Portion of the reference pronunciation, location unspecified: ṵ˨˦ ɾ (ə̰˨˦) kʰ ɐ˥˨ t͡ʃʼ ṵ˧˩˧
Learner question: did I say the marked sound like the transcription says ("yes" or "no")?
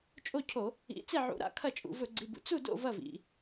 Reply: no